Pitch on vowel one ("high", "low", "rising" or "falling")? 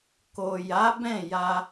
low